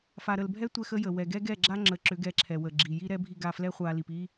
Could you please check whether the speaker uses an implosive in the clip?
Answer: no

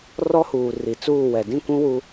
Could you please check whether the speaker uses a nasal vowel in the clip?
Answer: yes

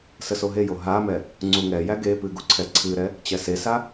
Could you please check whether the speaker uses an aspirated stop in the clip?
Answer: yes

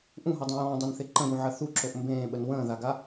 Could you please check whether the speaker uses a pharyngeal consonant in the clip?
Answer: yes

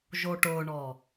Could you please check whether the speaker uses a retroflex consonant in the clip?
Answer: yes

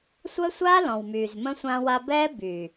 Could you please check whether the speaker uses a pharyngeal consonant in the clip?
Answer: no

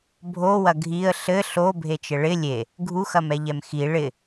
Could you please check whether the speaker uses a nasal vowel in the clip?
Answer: no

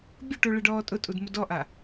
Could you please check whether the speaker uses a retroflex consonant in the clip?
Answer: yes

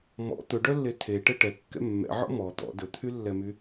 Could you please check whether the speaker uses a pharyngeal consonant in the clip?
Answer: yes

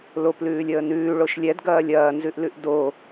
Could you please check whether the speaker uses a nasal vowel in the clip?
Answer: no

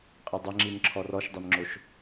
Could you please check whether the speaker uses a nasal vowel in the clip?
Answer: no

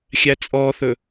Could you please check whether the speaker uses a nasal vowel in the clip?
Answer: no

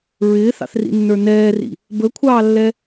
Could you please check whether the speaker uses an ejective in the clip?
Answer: no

